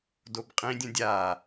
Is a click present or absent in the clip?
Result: absent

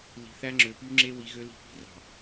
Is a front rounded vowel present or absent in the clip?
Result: present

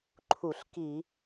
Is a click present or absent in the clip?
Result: present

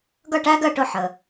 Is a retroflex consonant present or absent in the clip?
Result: present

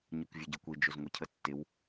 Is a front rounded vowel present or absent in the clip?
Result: absent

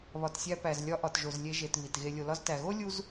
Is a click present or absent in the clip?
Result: absent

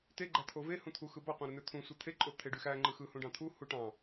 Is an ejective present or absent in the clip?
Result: present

